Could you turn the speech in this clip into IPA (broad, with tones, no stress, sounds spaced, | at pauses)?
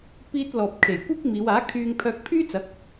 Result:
p iː˧ t̚ l ɔː˨ p̚ kʰ e˨˩ j kʷ iː˥ k̚ m iː˨˧ w aː˨˥ kʰ yː˧ ŋ pʰ œː˧ k̚ pʰ yː˥ t͡s ɐ˨˥ k̚